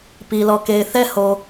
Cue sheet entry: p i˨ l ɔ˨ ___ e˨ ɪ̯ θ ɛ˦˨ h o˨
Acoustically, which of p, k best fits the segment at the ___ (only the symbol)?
k